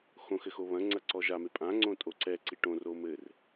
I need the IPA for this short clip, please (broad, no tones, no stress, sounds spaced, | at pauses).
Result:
x õ x ɘ x o β ɐ̃ ŋ͡ǀ ɐ ǀ ɔ ʒ a m e pʼ ã ŋ͡ǀ õ tʼ o ǀ ɛ ǀ i ʈ õ r o m ɘː r